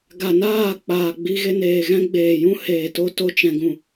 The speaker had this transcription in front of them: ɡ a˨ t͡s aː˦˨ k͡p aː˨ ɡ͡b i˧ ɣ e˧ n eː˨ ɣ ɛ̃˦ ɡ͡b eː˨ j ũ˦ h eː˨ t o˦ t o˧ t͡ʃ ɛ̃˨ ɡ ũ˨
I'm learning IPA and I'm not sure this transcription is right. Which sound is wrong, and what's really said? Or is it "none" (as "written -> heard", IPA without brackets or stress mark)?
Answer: t͡s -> n